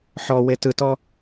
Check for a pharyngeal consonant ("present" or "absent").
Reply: present